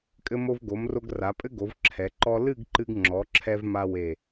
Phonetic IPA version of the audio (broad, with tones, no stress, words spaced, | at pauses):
kʼɘ˧mo˧vɡo˩˧mro˧ɡ ra˩˧pʼɘ˥ɡo˩˧v ǁʰɛ˩˧ǃɔ˥ lɨ˥˧ɡǃɨ˧ɡŋ͡ǁɔ˩˧ǁʰɛ˧v ma˥we˧˩